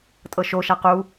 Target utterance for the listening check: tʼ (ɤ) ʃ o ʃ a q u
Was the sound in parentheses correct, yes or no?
yes